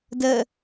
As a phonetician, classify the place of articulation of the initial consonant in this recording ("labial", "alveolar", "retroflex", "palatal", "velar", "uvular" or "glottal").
alveolar